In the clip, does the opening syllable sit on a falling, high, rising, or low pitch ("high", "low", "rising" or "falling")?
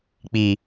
low